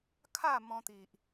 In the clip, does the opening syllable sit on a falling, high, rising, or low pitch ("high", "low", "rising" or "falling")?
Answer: falling